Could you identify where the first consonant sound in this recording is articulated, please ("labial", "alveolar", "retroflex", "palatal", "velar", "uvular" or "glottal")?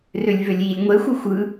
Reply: alveolar